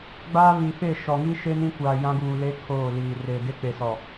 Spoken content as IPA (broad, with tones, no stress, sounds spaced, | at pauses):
ɡ͡b aː˦ β i˨ f e˦˨ ʃ ɔ˨ ŋ i˦ ʃ e˦ n ĩ˦ kʷ aː˨ j ã˦ ɡ uː˨ l e˦ kʰ oː˦˨ l iː˨ r eː˨ d e˦ k͡p e˨ s ɔ˨